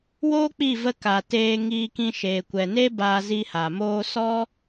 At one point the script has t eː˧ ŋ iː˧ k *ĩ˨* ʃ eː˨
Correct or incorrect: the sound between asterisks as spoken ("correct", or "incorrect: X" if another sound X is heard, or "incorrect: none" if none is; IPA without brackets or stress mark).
incorrect: ĩ˧